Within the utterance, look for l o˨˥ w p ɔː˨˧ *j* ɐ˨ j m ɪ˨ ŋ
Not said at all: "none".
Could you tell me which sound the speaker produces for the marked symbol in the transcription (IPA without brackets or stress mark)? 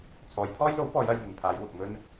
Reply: j